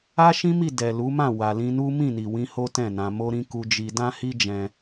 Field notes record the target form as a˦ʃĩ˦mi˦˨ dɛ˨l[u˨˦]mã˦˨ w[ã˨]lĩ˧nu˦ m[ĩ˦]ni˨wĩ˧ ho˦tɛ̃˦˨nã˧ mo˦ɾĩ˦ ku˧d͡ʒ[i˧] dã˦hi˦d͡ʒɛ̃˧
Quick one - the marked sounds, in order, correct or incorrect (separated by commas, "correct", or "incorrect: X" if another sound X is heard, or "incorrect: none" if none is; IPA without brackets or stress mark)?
correct, incorrect: a˨, incorrect: ĩ˦˨, correct